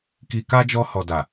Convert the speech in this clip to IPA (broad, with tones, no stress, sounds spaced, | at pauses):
k i˧ k a˦ d͡ʒ ɔ˧ h ɔ˨ d a˨